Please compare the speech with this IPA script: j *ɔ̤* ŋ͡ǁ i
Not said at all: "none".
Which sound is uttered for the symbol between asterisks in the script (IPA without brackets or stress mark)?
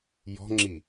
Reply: ɔ̤